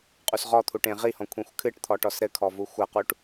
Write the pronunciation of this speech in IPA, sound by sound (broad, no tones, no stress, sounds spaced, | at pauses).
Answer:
qʼ u s ʁ ɔ t̪ʰ u ʈ ẽ ʁ i h ɔ̃ kʷʰ ĩ xʷ kʰ ɨ ʈ t̪ʰ ɔ ʈ ɔ s ɾ ɘ kʰ ɔ v u xʷ ɐ q u ʈ